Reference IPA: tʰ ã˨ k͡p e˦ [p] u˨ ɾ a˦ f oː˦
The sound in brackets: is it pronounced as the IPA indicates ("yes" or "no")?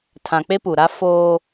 yes